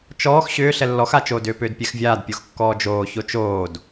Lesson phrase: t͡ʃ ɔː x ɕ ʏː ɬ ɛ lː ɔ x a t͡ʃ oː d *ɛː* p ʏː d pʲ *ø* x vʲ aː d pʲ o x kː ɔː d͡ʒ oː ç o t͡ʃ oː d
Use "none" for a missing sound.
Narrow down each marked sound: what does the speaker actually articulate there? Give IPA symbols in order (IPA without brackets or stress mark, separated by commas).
ʏː, ɛ